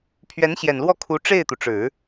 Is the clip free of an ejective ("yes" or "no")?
yes